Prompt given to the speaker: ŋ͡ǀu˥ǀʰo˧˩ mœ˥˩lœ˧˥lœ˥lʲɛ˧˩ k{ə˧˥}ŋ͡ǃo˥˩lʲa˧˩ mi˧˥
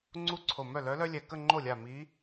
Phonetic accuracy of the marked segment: incorrect: ə˥˧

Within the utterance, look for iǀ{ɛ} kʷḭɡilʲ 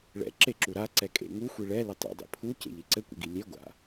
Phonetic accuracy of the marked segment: incorrect: ɘ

